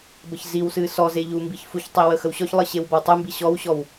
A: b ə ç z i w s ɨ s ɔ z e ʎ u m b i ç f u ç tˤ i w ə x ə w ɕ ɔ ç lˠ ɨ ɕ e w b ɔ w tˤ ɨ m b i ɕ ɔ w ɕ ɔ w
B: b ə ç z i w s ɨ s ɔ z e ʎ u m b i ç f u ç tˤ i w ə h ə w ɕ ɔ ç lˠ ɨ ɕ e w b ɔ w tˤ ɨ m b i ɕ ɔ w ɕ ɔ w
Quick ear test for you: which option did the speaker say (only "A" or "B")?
A